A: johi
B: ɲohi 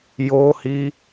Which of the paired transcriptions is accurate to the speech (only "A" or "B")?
A